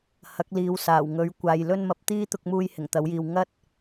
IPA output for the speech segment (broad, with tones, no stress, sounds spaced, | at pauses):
h ɐ˨˥ k̚ l iː˨ w s aː˨˩ w ŋ ɵ˨˧ ɥ kʷ aː˨ j l ɵ˧ n m ɐ˨˥ p̚ t̪ iː˥ t̪ ʊ˧ k̚ m uː˧ j h ɪ˨˩ ŋ t̪ ɐ˨˥ w j iː˨ w ŋ ɐ˥ t̚